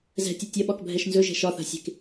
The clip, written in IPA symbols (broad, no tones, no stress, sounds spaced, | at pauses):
z ɛ̤ tʲ ɐ tʲ ɐ ɓ ɒ k bʱ ɛ ʃ n z ɵ ʒ ɛ̤ ʃ ɒ θ a̤ sʲ e̤ k